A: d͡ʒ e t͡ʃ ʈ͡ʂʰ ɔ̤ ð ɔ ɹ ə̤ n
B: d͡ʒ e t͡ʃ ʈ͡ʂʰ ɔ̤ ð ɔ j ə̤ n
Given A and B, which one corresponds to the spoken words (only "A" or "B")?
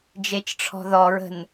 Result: A